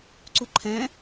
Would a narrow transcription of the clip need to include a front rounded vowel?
no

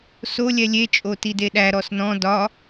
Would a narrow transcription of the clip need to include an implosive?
yes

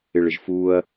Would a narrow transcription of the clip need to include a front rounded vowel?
no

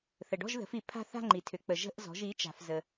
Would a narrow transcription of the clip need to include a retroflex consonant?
yes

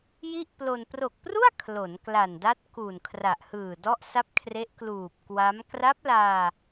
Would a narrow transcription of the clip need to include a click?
no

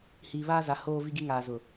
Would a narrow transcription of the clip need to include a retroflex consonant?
no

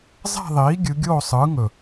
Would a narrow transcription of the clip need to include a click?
no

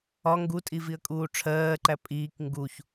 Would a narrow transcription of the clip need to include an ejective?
yes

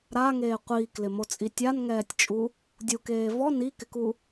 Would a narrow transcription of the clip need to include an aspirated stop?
no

